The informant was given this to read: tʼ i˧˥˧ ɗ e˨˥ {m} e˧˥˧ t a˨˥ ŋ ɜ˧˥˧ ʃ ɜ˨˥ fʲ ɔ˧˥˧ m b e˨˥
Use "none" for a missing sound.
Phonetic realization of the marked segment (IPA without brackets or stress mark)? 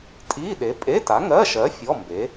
pʼ